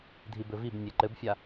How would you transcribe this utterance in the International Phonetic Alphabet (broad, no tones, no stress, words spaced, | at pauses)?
dʱibɘvibnʲe ǃɘbfʲa